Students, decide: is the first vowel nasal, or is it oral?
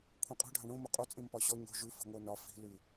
nasal